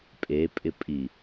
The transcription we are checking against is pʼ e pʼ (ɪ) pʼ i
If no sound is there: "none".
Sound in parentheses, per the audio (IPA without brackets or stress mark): ɪ